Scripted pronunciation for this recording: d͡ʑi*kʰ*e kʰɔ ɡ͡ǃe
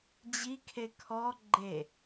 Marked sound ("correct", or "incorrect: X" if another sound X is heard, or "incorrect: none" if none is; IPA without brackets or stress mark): correct